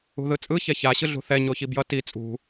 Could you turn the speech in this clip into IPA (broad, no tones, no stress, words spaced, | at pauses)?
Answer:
ṳðɯt͡sʼɯ çɛça ɕɯɮṳθɛ ɲoçibjʌ ti t͡sʼṳ